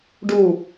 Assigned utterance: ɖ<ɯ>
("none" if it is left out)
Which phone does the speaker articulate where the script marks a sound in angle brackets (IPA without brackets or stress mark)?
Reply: u